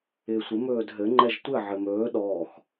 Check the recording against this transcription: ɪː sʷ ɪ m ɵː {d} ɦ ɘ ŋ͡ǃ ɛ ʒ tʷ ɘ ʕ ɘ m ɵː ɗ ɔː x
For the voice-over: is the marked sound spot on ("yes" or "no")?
yes